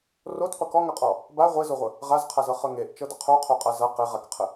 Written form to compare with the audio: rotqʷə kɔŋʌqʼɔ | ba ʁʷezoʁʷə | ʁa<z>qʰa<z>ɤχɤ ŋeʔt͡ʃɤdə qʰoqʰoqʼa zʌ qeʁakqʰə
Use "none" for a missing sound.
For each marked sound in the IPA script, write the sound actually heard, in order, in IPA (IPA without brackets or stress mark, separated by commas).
z, z